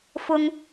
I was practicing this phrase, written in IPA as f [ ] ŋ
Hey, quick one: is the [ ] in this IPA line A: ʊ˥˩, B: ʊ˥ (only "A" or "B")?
B